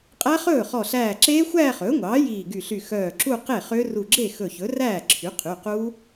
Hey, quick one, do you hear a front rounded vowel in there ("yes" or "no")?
yes